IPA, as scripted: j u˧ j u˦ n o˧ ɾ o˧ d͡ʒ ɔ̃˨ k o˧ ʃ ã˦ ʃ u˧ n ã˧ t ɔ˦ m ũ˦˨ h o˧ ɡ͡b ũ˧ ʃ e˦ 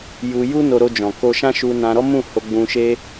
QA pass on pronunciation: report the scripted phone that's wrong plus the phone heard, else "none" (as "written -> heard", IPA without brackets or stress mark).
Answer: t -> ɾ